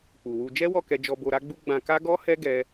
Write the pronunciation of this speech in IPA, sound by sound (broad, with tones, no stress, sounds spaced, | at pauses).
k͡p u˨ w u˧ d͡ʒ ɛ˦ w ɔ˦˨ k ɛ˧ d͡ʒ ɔ˧ b o˧ ɾ a˦ ɡ͡b u˦ ɡ͡b ã˧ k a˦ ɡ ɔ˦ h ɛ˦ ɡ ɛ˦